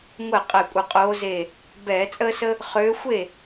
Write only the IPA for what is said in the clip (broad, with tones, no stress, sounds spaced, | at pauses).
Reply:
ŋʷ ɛ˥˩ qʼ ɛ˧˩ kʷʼ ə˧˩ qʼ oː˨˦ z e˧˩ | b ɛː˧˩˧ t͡sʼ əː˦ s ə˦ | χ øː˨˦ xʷ e˥˩